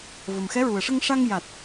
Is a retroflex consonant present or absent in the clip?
present